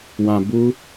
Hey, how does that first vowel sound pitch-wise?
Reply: low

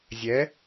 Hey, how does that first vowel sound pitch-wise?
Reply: rising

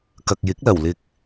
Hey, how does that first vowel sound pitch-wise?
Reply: low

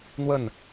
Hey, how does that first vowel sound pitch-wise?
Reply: falling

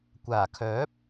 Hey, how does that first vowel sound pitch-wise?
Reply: low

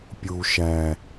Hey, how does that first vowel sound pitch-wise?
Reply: low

